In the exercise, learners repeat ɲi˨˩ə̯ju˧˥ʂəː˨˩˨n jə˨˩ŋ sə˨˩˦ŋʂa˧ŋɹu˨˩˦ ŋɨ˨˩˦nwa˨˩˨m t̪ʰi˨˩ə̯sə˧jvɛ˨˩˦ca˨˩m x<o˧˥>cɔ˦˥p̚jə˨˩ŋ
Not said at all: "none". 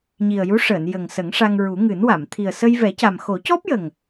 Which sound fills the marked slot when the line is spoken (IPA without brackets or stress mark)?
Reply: o˨˩˦